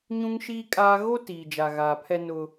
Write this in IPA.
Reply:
ɲũ˦ŋʃiː˦kʼaː˦ ɣo˦ tiː˨d͡ʒa˨ ɣaː˨pʰɛ˦ nʊ˦

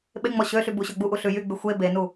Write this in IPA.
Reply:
ɓeŋ͡mɔ ɕøɬy buɕøɡ͡buʔu ɬʉjyɡ͡by xʷe benu

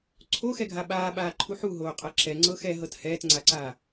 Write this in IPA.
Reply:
ǀʰoxɛɡʱa ɓaːɓaːǃʰu ħuɦoːqʼɤ ǁɛŋ͡ǀɤ xɛɦɤt hɛːtŋ͡ǀaǀaː

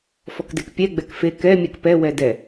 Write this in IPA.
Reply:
fɔkdekpʲɛ ɡ͡bɛkfe kɛ mʲɛkpɛ wɛdɛ

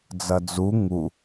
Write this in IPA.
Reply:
d͡zɐd͡zu ŋu

